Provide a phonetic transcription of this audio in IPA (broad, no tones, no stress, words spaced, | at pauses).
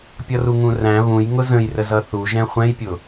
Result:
pʲʌruŋũræ̃ βũj ŋʊzə̃jrə zʌθuʒɛ̃ χʷɛ̃jpʲʊ